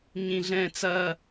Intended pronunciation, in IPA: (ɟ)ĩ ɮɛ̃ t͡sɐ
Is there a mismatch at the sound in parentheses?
yes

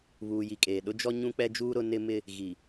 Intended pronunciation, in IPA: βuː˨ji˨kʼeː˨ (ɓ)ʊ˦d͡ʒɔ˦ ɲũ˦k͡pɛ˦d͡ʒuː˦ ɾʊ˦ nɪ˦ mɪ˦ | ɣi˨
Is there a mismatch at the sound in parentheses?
yes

